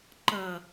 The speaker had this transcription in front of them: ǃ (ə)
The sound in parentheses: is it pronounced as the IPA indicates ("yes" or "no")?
no